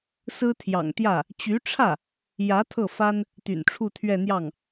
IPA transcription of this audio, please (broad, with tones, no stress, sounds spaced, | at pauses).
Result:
s ɹ̩˥ t̪ʰ j ɑ̰˨˩ ŋ t̪ j ä˥˩ | t͡ɕ y˧˥ ʈ͡ʂʰ ä˥˩ | j ä˧˥ t̪ʰ ɤ˥˩ f a˥ n | t̪ y̰˨˩ n ʈ͡ʂʰ u˥˧ t̪ʰ ɥ ɛ˥˧ n̪ j ɑ˥˩ ŋ